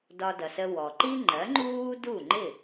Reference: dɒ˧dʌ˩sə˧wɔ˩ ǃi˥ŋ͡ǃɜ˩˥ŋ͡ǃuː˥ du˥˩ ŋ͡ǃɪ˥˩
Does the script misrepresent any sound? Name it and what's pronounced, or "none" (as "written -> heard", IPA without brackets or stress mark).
none